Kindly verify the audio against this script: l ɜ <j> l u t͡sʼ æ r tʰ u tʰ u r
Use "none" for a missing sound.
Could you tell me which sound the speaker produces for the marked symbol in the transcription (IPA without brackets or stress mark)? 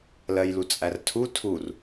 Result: j